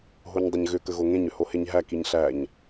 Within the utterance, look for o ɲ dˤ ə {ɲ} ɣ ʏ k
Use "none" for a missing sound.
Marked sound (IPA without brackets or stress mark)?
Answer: ɲ